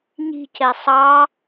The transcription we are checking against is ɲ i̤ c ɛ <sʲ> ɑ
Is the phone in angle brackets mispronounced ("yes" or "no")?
yes